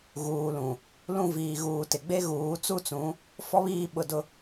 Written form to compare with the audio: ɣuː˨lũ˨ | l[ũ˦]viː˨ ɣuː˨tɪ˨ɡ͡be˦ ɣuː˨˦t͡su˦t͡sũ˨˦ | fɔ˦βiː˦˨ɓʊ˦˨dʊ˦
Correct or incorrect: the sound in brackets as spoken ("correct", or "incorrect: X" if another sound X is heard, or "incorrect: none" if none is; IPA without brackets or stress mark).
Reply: incorrect: ũ˦˨